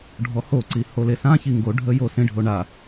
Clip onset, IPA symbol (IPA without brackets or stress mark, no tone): ɖʱ